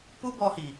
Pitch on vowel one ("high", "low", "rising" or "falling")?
high